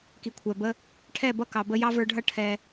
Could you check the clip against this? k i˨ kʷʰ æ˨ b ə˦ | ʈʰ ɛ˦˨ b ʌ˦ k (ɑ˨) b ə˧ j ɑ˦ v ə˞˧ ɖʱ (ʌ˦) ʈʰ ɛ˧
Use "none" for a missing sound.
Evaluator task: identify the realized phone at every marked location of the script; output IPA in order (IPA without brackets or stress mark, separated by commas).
ɑ˨, ʌ˦